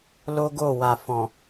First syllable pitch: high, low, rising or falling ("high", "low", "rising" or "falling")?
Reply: high